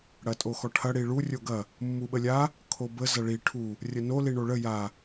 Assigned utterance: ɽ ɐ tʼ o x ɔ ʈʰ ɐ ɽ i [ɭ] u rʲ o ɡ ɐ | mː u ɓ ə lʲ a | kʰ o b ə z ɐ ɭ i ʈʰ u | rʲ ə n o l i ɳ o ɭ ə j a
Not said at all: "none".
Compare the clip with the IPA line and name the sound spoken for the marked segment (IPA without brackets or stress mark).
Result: ɭ